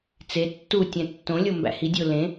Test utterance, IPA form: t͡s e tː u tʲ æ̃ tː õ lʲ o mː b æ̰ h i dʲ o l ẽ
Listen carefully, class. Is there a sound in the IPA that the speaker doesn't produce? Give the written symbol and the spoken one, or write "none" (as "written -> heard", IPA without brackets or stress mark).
mː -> m